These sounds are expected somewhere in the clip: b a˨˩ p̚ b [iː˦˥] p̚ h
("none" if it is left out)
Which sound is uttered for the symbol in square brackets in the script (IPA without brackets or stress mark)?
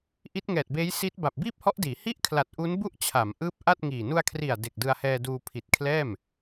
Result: iː˥˩